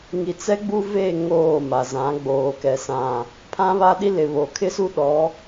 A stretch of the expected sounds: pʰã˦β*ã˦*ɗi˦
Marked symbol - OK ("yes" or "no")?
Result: no